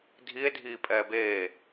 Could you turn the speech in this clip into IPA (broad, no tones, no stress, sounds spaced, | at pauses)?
dʱ i e̯ dʱ iː pʼ ɛː b eː